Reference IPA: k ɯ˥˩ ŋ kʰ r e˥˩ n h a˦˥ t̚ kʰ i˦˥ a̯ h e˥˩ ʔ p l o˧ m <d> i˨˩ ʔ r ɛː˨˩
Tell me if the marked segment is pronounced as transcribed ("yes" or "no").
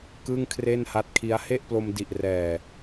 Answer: yes